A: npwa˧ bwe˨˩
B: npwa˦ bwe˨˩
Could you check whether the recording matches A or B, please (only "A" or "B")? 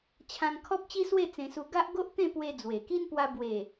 A